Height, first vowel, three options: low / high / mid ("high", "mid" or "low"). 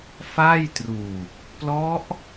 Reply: low